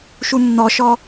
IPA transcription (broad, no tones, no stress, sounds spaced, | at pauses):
ʃ u nː ɔ ʃ ɔ